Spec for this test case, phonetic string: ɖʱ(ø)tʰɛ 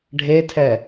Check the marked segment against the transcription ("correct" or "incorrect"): incorrect